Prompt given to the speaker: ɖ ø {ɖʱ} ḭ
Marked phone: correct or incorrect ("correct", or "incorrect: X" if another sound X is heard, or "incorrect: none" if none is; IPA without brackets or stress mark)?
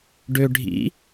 correct